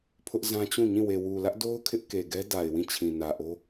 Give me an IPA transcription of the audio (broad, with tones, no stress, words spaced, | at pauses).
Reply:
pʰʊ˦ʔzã˦t͡ɕũ˦˨ɲĩ˦˨ we˨wu˨lä˦ʔdo˦ʊ̯ kʰɪ˦ʔ ke˨ɡɛ˦ da˨ɪ̯wĩ˦˨ t͡ɕʰĩ˨nä˨ʔo˦